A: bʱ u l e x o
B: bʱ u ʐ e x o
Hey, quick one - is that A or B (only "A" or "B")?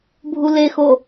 A